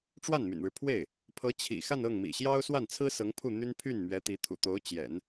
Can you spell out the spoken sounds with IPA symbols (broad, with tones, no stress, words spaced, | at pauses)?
ʈ͡ʂwa˥˩nmy̰˨˩nɻɻ̩˦pʰwe˥˩ɪ̯ | pʰɤ˧˥ t͡ɕʰḭ˨˩xa˥˧nɤ˥˩ŋ mḭ˨˩ɕjɑ˥ʊ̯swa˥˩nt͡sʰɹ̩˥ sɤ˧˥ŋpʰu˥˩n̪y˥n pʰy˥˩nmɥɛ˧˥t̪i˧˥t̪ʰṵ˨˩ t̪o˧˥ʊ̯t͡ɕjɛ̰˨˩˦n